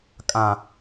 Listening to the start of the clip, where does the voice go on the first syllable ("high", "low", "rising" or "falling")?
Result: low